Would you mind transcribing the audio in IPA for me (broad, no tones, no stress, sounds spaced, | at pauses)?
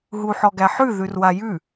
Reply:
ɦ u ħ ɔ ɡ æ ħ ʉ ð ʉ r w a j ʉ